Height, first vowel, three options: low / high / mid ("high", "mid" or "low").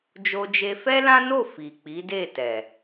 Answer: mid